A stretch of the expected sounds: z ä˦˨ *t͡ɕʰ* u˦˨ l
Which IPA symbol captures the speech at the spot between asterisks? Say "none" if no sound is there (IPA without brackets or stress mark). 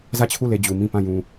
t͡ɕʰ